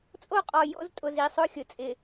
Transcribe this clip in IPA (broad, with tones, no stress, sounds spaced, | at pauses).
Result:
t͡sʼ o˦ qʼ ɔ˨ j o̰˦ z tʼ ʊ˨ z i˨ sˤ ʊ˦˨ xʲ ʊ˨ t͡sʼ ɪ˨